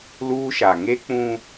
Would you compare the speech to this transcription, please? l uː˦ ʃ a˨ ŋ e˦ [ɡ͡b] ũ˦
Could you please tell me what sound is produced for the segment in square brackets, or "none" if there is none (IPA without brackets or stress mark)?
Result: k͡p